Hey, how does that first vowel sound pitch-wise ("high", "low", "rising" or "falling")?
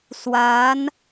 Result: rising